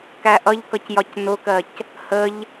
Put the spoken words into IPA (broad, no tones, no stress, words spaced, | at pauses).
kæʔʌʎkʌc jɒcnʊkɜc | həʎ